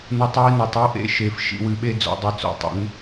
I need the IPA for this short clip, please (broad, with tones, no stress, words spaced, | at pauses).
nu˧tˤwi˥˧no˩˧tˤ i˥wʔḛ˥˧ ʃe˩˧fʃḭ˩˧wɨ˩˧ɓe˥˧ d͡zo̰˩˧dˤɘ˧˩t͡so̰˩˧ tˤɛ̰˩˧n